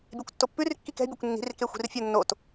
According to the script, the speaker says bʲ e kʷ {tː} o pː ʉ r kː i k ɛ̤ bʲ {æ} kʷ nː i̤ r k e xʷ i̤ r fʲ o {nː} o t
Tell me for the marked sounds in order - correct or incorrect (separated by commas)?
correct, correct, correct